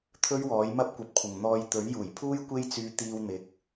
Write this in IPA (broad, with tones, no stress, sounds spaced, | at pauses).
t̪ʰ ɵ˥ ɥ w ɔː˨˥ j m ɐ˥ p̚ kʷ ɐ˧ p̚ kʷʰ ɪ˨ ŋ n̪ ɔː˨˧ j t̪ ɵ˨˥ ɥ j uː˨˩ j pʰ uː˥ j kʷ e˥ j t͡s yː˧ t̪ iː˧ w n̪ ɪ˨˥ k̚